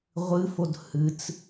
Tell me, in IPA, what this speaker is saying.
ʁʷ ɨ f o d h ɨ t͡s

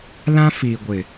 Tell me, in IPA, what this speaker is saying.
l ã˦ f i˨ ɡʷ ɪ˨

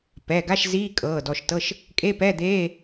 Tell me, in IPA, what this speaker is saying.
p ɛ˩˧˩ ɡ a˧˥˧ ʃ z iː˧˥˧ kʼ ɤː˩˧˩ d ɔ˩˧˩ ʃ t ɤ˧˥˧ ʃ | kʼ e˧˥˧ p ɛ˧˥˧ d̪ eː˧˥˧

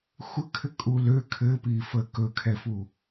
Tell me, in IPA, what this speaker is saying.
xʷ ə kʰ ɘ kʼ u l ø kʰ ɘ p i f ə k ɵ kʰ ɛ f u

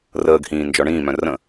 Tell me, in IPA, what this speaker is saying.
r əː ɡ h ĩː n d͡ʒ ɔ ɳ ĩː m œ̃ r ə̃

